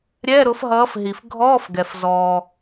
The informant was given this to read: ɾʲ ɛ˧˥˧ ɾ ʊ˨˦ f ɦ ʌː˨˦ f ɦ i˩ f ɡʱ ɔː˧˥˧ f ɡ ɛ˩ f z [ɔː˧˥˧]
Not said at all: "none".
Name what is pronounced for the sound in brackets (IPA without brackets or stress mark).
ɔː˩